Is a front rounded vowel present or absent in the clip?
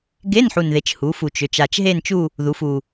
present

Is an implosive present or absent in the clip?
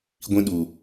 present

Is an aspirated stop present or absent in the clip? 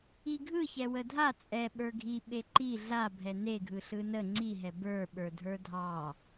absent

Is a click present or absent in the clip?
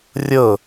absent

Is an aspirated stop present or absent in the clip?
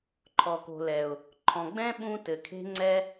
present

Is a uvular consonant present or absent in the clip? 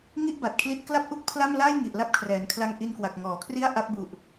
absent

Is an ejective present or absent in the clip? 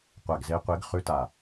absent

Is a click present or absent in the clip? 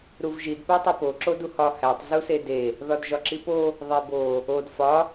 present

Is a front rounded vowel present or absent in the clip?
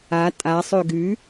present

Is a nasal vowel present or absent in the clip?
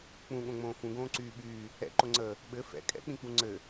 present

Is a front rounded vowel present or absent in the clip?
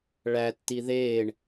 absent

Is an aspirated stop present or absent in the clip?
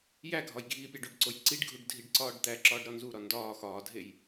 absent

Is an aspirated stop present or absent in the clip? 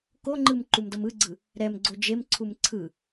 present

